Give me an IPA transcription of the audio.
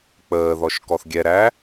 k͡pəːðɔʃ kɔθɡʲɛɾæ

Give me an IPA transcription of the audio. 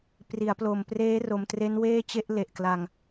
pri˩˦a̯plo˨˩m preː˦˥ro˨˩mtre˦˥n weː˥˩t͡ɕe˥˩ʔle˨˩ʔkla˧ŋ

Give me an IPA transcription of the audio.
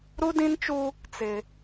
ɾu˦dĩ˦nt͡ʃu˦ | t͡sɪ˦

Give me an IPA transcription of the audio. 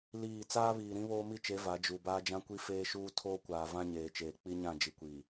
liː˦˨ t͡saː˦βiː˨ ɾĩ˦βoː˦mi˦t͡ʃe˨˦ va˨˦d͡ʒu˨ baː˦d͡ʒã˦kʷi˦ feː˦ʃuː˦ tʰoː˦kʷaː˨vã˦ ɲeː˨t͡ʃeː˨ k͡pi˦ɲã˦˨ d͡ʒi˨kʷiː˨

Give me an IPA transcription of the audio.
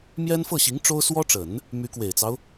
mjɛ˥nfɤ˥˩ɕi˧˥ŋ ʈ͡ʂo˥ʊ̯swɔ˥ʈ͡ʂə˨˩˦n | my˧˥kwe˨˩ɪ̯t͡sɑ˦ʊ̯

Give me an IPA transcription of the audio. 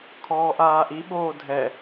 kʰɔːʔaːʔi ɓoːdʱɛ

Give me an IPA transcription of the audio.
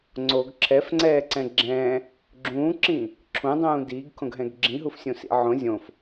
ŋ͡ǀoɡ ǁʰɛfŋ͡ǀɛːǀɛ̃ ɡ͡ǁɛ̃ | ɡ͡ǁũːǁĩ | ǁʰũdˤũː diːɡkʰõɡɦɛ̃ɡ ɡ͡ǁĩɦufsʲũsḭ ʕõ zʲõf

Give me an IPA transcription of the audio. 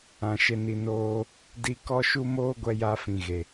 ã˨ ʃe˨ni˨ noː˧ | di˧kɔ˦ʃu˦ moː˦ɡʷɛ˧ja˧ fĩ˨ɣe˨

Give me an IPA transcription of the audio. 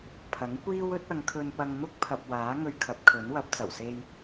pʰɐ˨˥ŋkʷiː˥w ɵ˨˥t̚ɐ˨˧ŋkʰɵ˧n pɐ˧ŋn̪ʊ˥k̚pʰɐ˨p̚ waː˨˥ ŋɵ˧ɥkʰɐ˨˥p̚kʰɵ˨˥nwɐ˨˥p̚ t͡sɐ˨˩wse˥j

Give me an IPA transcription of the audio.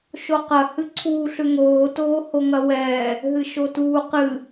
ʃoqɐ hɨǀʰuːɬʏŋoː toːhoŋɐwɛː | ɦɨʃotuːqɨ

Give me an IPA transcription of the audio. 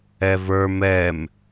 ɛvə˞ mɛm

